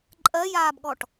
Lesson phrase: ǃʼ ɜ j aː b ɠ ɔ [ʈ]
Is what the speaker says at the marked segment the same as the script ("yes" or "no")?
yes